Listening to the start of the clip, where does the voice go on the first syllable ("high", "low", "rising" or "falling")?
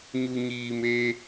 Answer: low